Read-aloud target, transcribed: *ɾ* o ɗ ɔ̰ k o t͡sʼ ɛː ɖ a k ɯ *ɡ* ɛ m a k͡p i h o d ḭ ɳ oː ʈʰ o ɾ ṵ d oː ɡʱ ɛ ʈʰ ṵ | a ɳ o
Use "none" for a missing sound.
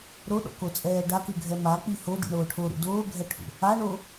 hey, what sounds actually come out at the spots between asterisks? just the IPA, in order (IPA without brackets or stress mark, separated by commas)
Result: ɾ, ɡʱ